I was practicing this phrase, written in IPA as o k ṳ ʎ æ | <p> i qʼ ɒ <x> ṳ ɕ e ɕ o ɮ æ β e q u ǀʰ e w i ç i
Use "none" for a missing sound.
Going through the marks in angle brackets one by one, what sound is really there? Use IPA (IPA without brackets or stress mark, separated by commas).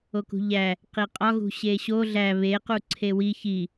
q, ɣ